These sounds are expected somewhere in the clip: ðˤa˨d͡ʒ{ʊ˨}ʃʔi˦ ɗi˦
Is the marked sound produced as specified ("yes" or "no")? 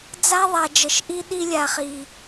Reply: no